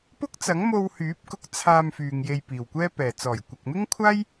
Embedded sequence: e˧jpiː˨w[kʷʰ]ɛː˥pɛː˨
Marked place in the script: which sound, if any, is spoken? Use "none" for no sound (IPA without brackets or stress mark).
kʷ